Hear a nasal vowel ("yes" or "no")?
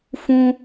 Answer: yes